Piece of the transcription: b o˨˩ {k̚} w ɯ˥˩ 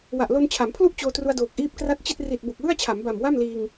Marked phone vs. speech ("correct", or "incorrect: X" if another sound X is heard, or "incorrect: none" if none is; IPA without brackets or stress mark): correct